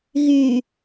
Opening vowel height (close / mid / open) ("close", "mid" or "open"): close